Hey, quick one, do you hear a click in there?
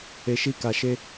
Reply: no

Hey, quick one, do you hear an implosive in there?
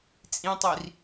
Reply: no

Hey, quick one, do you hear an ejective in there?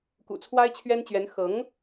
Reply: no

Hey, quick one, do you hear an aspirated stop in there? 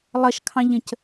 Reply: yes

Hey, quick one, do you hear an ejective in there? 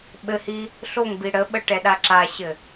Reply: no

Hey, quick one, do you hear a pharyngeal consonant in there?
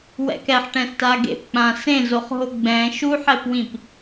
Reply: yes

